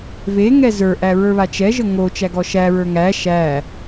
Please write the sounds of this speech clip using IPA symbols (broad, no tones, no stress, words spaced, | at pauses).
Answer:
ve ŋɛzə˞ʔæ ɹə˞βat͡ʃɛʒə ŋo t͡ʃæɡɔʃæɹə˞ ŋæ ʃæ